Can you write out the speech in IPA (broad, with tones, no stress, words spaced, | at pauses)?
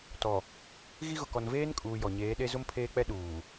tɔ˨ | ɣi˦ɣʊ˨kɔ˨n veː˦nkʼuː˨ jɔ˨ ɲeː˨˦ɗe˦ zʊ˦mpʰeː˦k͡pɛ˦ ɗuː˨